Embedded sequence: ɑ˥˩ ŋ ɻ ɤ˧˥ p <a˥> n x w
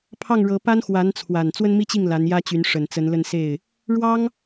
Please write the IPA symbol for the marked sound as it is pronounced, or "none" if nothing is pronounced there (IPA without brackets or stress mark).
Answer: a˥